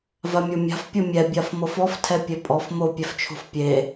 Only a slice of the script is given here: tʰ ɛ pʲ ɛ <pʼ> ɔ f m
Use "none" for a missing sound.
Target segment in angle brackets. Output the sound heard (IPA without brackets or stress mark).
pʼ